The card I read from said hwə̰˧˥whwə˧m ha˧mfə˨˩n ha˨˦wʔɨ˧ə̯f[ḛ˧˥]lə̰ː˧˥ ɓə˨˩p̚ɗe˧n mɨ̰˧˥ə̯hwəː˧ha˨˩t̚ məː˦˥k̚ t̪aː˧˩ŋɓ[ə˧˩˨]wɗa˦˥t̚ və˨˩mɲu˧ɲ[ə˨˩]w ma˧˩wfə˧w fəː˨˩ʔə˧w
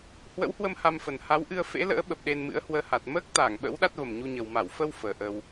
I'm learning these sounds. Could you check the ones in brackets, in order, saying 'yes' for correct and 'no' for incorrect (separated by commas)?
yes, no, yes